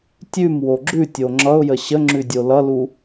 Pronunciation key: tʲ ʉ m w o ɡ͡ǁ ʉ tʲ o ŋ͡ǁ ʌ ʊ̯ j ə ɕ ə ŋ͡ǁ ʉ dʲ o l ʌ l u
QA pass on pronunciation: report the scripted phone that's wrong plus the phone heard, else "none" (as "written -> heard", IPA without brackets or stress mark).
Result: none